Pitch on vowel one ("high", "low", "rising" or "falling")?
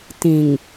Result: low